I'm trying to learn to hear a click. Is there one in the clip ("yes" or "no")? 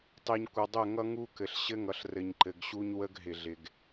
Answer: yes